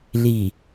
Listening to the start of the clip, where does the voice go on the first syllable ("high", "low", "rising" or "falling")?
low